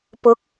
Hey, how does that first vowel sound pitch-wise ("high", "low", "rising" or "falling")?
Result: rising